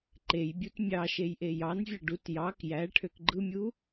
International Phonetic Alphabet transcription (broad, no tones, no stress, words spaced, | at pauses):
ǃejbʲut mʲɑʃej ʔejɑnvʲɑ ɖut jɑk jæ ʈʰøkɡ͡ǃɯmʲu